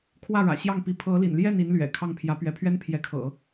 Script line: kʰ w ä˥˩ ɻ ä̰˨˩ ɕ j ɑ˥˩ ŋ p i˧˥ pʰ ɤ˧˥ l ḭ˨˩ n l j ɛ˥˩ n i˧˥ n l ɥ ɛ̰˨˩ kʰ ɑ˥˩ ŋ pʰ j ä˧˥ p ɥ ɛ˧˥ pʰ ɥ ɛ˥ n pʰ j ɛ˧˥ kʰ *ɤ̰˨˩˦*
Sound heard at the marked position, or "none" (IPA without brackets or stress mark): ɤ̰˨˩˦